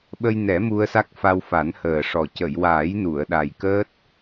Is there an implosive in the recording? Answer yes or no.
yes